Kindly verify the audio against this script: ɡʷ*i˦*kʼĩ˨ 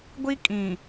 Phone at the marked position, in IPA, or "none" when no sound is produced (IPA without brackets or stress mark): i˦